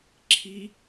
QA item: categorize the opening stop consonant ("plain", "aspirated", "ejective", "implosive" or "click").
click